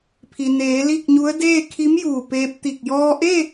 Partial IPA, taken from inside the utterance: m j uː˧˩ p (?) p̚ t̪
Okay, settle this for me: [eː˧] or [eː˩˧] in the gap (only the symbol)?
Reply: eː˧